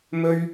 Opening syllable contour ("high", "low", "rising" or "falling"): high